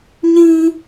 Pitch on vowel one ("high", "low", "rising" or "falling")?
high